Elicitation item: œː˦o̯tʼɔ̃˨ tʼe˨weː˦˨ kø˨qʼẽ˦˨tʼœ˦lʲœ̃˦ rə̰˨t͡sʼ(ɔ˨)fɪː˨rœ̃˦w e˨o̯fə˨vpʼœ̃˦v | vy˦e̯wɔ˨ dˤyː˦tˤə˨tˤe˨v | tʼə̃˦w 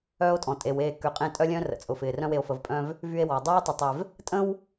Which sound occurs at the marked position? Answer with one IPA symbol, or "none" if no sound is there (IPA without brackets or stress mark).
ʊ˨